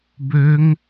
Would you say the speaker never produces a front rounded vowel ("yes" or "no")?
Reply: no